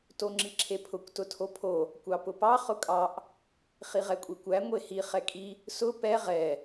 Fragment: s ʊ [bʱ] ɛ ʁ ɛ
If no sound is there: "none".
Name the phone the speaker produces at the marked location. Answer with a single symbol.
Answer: p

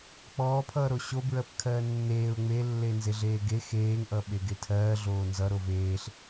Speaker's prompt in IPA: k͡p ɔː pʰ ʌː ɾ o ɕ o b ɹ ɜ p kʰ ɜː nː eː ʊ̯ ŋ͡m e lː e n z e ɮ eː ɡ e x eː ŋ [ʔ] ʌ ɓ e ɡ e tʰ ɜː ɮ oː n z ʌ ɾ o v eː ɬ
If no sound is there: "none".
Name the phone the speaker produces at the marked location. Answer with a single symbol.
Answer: ʔ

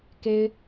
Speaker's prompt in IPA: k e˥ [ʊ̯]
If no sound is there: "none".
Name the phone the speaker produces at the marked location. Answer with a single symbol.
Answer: ɪ̯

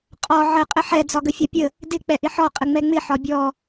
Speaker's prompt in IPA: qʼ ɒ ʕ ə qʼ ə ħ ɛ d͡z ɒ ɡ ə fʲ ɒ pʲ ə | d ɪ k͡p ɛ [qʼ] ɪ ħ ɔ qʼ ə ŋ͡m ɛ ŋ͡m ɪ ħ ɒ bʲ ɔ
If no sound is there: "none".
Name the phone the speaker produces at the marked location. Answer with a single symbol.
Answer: ʔ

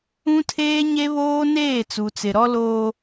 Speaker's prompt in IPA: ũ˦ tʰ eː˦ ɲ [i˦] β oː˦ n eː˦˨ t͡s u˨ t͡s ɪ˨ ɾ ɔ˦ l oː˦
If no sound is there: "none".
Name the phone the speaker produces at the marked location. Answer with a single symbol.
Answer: e˦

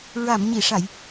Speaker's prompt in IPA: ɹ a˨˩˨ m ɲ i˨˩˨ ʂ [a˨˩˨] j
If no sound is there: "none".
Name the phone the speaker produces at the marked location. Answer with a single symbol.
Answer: a˨˩˨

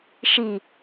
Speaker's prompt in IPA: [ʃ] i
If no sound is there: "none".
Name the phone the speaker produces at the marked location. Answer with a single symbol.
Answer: ʃ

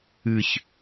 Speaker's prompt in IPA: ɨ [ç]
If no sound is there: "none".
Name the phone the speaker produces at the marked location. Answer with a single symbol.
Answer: ç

